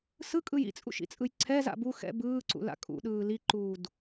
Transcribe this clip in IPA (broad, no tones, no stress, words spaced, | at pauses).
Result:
sɯkʼɯj ḭt͡sʼṵʃḭt͡sʼɯj ǀʰɛza̰ bu xɛ̰ bɯːǀṵla̰ kʼṵɗɯː liǃuːd